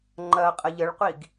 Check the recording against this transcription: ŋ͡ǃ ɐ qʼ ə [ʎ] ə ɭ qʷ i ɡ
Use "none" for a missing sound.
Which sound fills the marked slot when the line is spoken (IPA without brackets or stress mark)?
ʎ